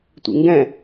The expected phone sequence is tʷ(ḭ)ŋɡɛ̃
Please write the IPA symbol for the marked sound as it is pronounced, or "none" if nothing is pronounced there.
ḭ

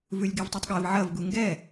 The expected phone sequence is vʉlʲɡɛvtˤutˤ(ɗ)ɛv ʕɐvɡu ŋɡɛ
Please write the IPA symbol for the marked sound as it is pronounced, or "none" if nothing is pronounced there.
ɠ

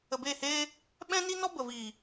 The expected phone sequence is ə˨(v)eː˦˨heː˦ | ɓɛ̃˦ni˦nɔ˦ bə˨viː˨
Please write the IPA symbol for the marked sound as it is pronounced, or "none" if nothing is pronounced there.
b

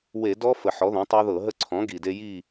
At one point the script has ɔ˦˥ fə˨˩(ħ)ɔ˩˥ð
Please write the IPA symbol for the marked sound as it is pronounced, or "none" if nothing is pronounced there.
ħ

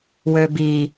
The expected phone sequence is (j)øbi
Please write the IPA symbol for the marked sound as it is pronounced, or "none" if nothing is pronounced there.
w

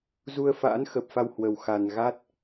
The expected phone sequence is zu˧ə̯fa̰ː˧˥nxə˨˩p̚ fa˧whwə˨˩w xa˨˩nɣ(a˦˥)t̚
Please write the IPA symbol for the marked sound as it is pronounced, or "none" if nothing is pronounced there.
a˦˥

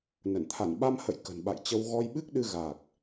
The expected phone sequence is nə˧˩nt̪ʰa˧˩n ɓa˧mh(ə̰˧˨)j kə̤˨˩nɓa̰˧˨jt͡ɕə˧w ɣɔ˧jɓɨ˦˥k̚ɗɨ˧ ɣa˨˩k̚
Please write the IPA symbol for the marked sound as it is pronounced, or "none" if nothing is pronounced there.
ə̰˧˨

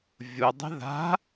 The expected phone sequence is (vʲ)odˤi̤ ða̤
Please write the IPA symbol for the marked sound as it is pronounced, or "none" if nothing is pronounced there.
vʲ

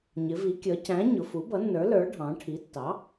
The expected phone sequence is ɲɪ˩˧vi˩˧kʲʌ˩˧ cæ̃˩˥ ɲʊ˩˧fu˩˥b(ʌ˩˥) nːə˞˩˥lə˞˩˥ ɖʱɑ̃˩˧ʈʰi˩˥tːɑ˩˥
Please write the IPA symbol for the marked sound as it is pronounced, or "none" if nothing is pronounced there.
ʌ˩˥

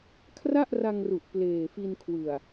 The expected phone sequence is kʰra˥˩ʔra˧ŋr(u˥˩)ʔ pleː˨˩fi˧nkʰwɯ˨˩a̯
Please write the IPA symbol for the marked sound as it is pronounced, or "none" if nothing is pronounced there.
u˨˩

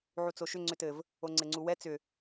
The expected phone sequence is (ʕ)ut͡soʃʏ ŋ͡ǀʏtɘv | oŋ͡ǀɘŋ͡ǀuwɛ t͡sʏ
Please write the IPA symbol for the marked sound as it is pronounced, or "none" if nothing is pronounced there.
ʕ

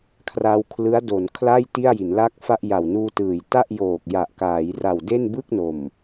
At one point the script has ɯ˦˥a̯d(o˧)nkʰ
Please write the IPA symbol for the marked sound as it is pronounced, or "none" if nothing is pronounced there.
o˩˦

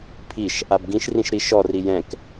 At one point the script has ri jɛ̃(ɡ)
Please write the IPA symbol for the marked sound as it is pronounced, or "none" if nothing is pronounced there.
k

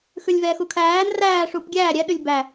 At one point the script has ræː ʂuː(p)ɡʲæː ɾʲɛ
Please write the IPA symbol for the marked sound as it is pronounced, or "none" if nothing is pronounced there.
p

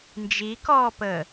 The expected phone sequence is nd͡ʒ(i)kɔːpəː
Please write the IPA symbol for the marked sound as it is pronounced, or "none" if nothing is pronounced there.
i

